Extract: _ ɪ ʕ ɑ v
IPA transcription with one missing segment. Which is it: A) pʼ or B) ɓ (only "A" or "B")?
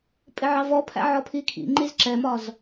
A